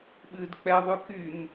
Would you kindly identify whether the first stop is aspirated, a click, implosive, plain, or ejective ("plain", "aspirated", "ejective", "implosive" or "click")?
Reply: implosive